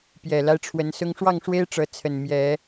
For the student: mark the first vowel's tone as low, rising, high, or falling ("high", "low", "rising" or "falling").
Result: low